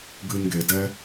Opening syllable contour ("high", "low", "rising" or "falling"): low